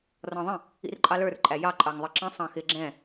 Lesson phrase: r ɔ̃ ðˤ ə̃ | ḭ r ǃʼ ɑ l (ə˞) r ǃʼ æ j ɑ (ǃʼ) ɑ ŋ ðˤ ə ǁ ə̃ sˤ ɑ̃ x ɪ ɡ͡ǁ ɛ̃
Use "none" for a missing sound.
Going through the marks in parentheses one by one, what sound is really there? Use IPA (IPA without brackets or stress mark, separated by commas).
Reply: ə˞, ǃʼ